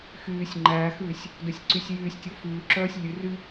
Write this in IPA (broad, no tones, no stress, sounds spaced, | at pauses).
x yː sʲ ŋ͡ǃ æː x ʉː sʲ | d œ sʲ ǀ y sʲ j yː sʲ tʲ o f ʉː ǁ œː sʲ lʲ ʉ r y